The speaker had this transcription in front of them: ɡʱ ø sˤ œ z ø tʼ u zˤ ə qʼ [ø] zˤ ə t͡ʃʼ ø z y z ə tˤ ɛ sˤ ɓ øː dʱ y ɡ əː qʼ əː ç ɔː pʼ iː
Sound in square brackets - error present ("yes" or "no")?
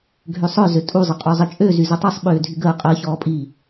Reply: yes